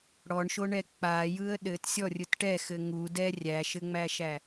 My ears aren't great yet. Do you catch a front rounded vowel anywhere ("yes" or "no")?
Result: no